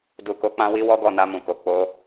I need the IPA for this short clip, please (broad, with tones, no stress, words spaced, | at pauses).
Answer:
du˨ko˨˦ k͡pã˦ wi˦wɔ˦ɡɔ˦˨na˧ mũ˨ko˨ k͡po˧